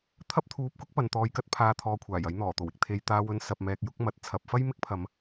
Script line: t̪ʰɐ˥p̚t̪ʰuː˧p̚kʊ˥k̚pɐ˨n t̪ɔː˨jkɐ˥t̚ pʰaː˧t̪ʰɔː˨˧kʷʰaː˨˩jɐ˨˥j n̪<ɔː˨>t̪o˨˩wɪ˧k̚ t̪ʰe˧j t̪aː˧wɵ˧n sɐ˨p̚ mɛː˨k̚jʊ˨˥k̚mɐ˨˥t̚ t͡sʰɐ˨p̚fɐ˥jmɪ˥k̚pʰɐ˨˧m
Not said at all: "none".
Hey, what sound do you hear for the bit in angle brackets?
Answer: ɔː˨˩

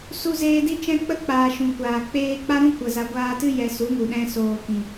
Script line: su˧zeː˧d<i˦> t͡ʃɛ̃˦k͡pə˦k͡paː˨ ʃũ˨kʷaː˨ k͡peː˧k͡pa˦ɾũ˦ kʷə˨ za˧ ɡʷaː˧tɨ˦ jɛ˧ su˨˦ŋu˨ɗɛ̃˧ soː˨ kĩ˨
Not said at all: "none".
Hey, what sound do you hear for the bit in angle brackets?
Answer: i˦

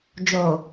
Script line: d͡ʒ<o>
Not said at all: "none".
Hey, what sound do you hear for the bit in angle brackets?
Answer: o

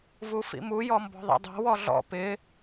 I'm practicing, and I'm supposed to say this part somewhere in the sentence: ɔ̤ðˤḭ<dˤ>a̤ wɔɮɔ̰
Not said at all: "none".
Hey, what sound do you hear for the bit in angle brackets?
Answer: dˤ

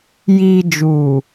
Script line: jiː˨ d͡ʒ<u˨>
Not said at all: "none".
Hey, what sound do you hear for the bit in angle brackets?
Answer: uː˨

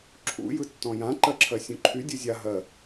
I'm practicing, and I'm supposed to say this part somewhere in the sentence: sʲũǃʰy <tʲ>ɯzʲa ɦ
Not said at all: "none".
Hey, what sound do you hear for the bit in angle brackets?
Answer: dʲ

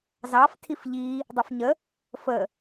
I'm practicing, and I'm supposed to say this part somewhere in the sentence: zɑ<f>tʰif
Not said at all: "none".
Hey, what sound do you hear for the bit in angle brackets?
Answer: f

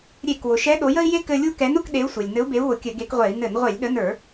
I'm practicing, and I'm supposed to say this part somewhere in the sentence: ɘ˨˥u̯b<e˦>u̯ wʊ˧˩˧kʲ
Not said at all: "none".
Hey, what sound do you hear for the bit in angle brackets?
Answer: e˨˥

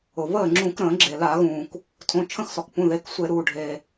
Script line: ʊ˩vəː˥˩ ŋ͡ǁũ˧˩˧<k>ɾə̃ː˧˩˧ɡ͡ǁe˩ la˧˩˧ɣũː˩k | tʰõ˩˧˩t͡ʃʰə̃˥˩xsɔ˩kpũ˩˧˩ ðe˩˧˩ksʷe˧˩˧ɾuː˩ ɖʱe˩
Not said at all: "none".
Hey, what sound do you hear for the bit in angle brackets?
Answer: k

